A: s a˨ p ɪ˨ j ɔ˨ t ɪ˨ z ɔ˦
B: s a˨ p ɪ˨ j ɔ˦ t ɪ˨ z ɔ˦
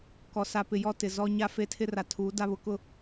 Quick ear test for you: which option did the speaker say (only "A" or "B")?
B